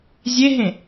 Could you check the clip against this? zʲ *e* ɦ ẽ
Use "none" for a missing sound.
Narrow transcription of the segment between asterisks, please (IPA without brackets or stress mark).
e